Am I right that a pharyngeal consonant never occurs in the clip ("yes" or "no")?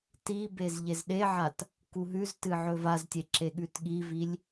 no